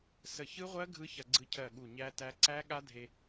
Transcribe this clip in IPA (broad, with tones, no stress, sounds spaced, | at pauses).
s ə˧˩ ç ɯ˦˥ ʁʷ ɜ˦˥ ɡʱ ɯ˦˥ ç ɐ˧ ɡ͡ǀ ɯ˧ cʰ ɜ˧˩ ɠ u˧˩ ɲ æ˦˥ t æ˦˥ ǀ æ˦˥ ɠ a˦˥ dʱ e˧